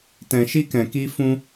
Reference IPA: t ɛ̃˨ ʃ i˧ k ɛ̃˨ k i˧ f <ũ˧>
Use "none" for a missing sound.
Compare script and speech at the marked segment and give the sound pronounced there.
ũ˧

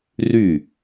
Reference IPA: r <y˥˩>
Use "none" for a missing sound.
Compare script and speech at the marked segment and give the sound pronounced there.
y˥˩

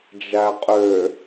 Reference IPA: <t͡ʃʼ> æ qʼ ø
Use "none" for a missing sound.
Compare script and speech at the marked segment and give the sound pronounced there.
d͡ʒ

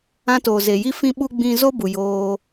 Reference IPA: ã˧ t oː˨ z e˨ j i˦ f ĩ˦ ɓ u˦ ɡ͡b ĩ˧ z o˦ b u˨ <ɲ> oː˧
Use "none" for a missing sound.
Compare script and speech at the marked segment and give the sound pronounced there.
j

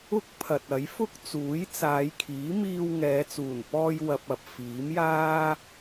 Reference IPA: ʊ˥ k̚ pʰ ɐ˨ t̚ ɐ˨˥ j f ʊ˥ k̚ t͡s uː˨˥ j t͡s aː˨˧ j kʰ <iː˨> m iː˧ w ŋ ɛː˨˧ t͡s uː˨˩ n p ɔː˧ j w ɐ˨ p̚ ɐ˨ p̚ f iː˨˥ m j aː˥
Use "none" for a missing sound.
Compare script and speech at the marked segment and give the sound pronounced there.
iː˨˥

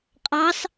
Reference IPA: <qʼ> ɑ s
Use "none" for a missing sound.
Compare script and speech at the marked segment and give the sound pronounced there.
qʼ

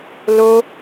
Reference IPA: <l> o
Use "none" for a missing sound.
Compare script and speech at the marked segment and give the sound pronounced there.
l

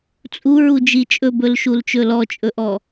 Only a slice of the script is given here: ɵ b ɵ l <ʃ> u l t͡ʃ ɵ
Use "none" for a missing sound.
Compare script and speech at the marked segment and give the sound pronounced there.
ʃ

